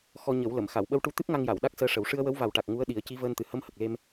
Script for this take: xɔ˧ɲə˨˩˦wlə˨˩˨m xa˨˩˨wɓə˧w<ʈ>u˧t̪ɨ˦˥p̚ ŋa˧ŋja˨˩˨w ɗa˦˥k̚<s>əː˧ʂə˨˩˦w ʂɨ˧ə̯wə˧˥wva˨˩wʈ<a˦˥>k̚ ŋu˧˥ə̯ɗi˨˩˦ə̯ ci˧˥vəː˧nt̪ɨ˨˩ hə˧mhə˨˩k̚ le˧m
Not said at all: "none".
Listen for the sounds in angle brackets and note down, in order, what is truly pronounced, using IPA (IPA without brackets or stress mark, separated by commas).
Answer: ʈ, s, a˨˩